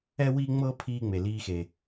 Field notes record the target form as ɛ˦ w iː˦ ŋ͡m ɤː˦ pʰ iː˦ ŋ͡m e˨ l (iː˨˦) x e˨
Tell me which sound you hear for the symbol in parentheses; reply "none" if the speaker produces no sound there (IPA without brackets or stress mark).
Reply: iː˧